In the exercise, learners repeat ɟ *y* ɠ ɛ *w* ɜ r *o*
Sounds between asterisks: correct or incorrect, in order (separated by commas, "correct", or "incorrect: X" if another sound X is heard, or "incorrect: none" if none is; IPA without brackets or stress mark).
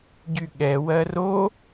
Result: correct, correct, correct